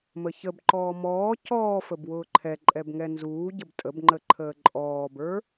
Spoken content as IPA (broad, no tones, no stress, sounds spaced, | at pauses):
m ə ç ə b ǃ ɔː m ɔː c ɔː f ə b w ʊː ǃʰ ɛ ǃʼ ɛ b ŋ ɛ n z uː ɟ ə b tʼ ə b ŋ͡ǃ ə ǃʰ əː ǃʼ ɔː b ə˞